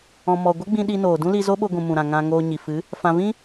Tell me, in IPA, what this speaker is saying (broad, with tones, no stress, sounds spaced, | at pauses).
ɔ̃˨ m ɔ˨ ɡʷ ə˦ ɡ͡b ĩ˧ ɗ i˧ n oː˨ d ũ˦ l i˧ z o˦ ɓ o˧ ɡʷ ũ˨ m ũ˨ ɾ ã˨ ŋ ã˨ ŋ oː˧ ɲ i˨ f ɨ˨˦ | f ã˧ v ĩ˦